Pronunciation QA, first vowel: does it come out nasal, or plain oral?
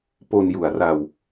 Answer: oral